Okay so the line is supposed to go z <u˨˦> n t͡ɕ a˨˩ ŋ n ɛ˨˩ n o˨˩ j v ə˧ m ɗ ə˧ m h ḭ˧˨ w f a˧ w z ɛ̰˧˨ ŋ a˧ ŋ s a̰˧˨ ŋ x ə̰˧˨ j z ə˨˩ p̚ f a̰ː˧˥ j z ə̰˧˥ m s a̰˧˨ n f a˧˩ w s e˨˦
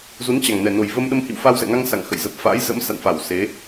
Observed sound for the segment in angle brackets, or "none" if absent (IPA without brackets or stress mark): u˨˦